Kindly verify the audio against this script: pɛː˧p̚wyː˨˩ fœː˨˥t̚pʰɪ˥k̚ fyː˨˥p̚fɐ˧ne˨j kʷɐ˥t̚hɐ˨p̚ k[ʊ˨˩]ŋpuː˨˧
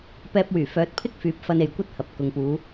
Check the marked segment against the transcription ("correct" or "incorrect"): incorrect